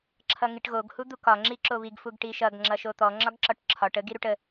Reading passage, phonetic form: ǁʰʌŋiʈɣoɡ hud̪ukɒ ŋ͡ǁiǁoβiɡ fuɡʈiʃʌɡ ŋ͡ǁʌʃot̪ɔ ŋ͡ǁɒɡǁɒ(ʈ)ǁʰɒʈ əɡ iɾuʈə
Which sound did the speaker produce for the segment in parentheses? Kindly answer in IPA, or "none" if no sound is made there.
ʈ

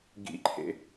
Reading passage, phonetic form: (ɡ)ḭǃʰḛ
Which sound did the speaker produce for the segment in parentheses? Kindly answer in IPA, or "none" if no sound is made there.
ɡ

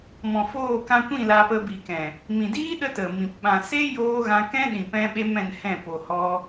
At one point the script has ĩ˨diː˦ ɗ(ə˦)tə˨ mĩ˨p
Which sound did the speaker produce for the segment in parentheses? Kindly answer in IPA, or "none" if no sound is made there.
ə˦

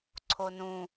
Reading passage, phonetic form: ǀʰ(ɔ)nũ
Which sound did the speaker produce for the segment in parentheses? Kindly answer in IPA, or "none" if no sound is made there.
o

